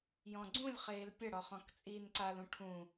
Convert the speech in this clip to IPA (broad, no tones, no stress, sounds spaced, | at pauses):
j ɔ̃ ɡ͡ǀ ũ lʲ χ eː l pʲ ɐ ɽ ɔ χ ɔ̃ k t͡sʼ iː n ǀ a l ũ ʈʰ ũ